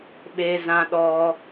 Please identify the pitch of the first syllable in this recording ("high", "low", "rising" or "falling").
high